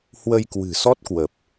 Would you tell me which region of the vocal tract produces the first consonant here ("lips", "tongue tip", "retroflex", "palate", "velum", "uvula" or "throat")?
throat